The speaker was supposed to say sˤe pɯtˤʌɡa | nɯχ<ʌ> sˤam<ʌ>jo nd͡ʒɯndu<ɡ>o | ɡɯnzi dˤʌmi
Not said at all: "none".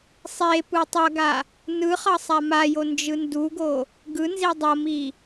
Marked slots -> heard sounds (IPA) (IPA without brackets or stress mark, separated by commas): ʌ, a, ɡ